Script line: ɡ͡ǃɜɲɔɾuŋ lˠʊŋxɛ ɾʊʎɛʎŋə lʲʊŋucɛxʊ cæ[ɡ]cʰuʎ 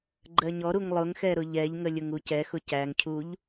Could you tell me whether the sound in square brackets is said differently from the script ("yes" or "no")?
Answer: yes